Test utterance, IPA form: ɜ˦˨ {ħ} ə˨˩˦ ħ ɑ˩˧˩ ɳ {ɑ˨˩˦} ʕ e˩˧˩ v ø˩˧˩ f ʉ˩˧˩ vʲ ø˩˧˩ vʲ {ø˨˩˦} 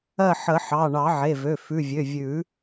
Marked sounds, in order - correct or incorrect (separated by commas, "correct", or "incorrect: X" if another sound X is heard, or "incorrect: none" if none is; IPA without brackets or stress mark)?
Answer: correct, correct, incorrect: ʉ˨˩˦